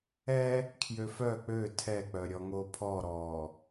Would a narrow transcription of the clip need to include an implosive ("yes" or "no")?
no